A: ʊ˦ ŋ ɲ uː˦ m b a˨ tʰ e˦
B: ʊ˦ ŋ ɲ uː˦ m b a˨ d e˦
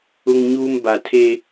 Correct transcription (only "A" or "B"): A